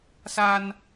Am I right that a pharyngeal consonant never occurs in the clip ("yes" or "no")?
yes